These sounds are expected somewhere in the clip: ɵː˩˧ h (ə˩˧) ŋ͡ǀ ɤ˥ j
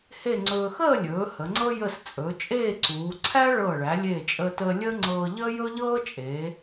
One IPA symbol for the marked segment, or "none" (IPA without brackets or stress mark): ə˩˧